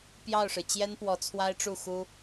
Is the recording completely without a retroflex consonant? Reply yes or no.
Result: no